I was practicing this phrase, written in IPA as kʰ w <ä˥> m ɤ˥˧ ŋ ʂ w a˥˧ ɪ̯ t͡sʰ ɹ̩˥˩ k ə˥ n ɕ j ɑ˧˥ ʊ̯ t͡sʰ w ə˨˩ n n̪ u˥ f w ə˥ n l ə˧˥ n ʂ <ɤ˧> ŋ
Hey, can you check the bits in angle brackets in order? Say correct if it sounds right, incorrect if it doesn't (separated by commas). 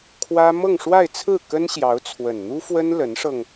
correct, correct